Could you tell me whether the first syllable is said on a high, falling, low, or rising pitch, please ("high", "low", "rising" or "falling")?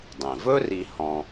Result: low